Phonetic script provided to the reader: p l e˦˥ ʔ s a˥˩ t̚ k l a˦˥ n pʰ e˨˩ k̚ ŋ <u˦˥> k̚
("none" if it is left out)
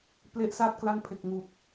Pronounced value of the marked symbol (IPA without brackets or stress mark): u˨˩